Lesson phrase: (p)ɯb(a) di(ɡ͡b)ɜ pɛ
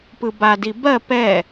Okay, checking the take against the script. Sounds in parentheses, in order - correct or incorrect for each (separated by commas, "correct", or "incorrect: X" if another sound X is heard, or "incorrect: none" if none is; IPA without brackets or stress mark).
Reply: correct, correct, incorrect: b